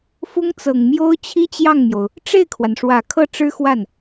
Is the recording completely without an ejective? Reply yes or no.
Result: yes